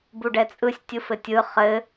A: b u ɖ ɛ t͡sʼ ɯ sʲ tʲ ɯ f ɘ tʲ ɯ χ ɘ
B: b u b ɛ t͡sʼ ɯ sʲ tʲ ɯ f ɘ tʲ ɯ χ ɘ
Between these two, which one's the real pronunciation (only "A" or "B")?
A